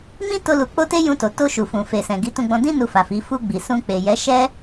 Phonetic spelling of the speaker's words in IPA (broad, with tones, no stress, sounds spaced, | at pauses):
m ĩ˦ t o˦ l u˧ k͡p o˦ t e˦ j ũ˧ t o˨ t o˧ ʃ u˨ f ũ˨ f e˨ s ɛ̃˨ ɡ i˨˦ t ũ˧ ɡ͡b ɔ̃˧ d ĩ˦ n u˧ f a˨ f i˨˦ f u˧ ɡ͡b i˨ s ũ˧ k͡p e˨ j ɛ˨˦ ʃ ɛ˦